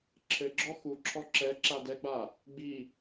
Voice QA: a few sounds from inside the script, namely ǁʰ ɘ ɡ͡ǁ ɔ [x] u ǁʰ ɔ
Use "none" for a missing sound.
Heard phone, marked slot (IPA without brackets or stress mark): x